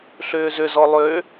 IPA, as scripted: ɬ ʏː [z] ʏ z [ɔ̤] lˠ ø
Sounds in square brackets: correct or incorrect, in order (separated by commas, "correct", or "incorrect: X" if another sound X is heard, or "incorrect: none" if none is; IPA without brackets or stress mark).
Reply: correct, incorrect: ɔ